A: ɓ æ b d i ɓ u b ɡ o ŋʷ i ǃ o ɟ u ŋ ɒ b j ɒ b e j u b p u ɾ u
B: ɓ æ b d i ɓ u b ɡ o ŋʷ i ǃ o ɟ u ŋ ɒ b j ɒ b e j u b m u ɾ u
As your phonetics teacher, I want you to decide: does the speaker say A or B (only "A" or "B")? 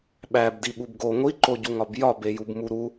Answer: B